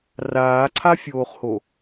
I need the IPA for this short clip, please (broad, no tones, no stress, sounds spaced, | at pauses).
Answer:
r aː ǀʰ a fʲ oː χ h o